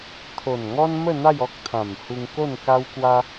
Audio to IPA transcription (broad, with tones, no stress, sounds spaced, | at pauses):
t̪ʰ o˨˩ n ŋ ɔ˦ n m ə˥˧ n̪ a˥˧ j ɔ˦ k̚ t̪ʰ ã˨˩ m h u˧ ŋ k o˥˧ n k a˦ w k w a˦